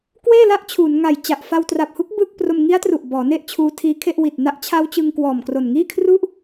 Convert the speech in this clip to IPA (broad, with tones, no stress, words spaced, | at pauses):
kweː˥˩la˦˥ʔ t͡ɕʰuː˩˦nŋa˨˩j t͡ɕa˨˩ʔ fa˧wtra˨˩p̚hu˦˥k̚ bɯ˥˩k̚ pro˧mŋi˦˥a̯tru˨˩ʔ bɔː˩˦ne˥˩ʔ t͡ɕʰuː˦˥tʰiː˦˥kʰe˥˩ʔ wi˨˩t̚na˦˥ʔ t͡ɕʰa˦˥wt͡ɕɯ˧ŋ kwɔː˨˩mkro˨˩nŋiː˥˩ kʰru˥˩ʔ